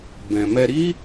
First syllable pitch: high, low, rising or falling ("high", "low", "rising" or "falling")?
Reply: low